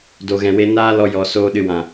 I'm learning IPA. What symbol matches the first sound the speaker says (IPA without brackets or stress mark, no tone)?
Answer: d